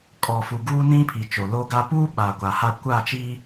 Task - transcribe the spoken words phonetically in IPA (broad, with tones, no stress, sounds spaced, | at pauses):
kʼ ɔ˨ f u˨ ɡ uː˦ n ĩ˦ pʰ i˨ t͡ʃ o˨ l o˦ ɡ a˦ p uː˦ ɓ aː˨ ɡʷ aː˨ h a˦˨ kʷ a˦˨ t͡ʃ iː˦